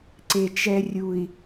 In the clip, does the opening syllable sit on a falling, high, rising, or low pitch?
low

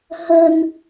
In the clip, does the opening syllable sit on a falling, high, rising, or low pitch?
low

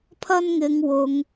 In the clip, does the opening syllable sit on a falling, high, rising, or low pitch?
high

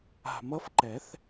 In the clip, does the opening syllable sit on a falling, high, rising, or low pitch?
low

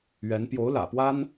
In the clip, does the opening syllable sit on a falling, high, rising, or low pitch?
rising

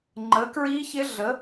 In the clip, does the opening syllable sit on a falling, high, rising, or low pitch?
rising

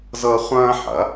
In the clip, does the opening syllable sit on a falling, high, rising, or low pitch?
high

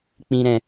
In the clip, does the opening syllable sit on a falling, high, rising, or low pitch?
high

